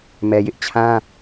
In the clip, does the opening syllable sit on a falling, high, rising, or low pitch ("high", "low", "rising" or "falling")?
low